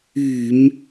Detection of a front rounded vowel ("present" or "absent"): present